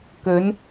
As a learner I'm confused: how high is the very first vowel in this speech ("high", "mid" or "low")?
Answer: mid